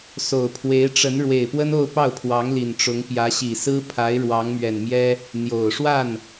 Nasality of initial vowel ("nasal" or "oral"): oral